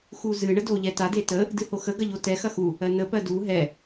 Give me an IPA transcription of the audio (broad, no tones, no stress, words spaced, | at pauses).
xuzɨ ɳədoʎɛta detə | dɨhoxə ɡɐʎotɛ xɐxu | ɜnə pɜdu ɦɛ